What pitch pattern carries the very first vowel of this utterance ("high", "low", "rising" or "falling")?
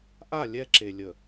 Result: falling